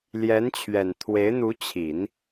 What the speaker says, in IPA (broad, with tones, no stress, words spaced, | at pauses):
ljɛ˧˥nt͡ɕʰɥɛ˨˩n t̪ʰwe˧˥ɪ̯n̪u˧˥ t͡ɕʰi˨˩˦n